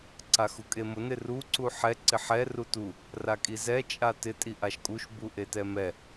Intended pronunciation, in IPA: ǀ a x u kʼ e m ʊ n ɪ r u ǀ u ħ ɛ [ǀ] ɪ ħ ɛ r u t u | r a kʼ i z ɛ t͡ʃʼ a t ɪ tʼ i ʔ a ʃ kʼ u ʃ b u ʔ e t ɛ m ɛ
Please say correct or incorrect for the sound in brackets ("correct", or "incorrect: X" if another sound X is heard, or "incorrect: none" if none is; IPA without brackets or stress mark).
correct